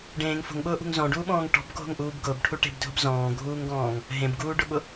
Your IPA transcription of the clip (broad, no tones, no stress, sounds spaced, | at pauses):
ɖ ẽː ŋ f o̤ ŋ ɓ ʊː ʔ ṳ ŋ z ɔ̃ ɖ uː ɓ ɔ̃ː ŋ ʈ ɔ̤ b ɡʱ o̤ ŋ ʔ uː b ɡ ʊː b ʈʰ u ʈ e̤ b dʱ ʊ b z ɔ̃ː ɡʱ uː ŋ ɡ ɔ̃ː ŋ | ɦ ẽ b ɡ uː ɖ ʊ ɓ ʊ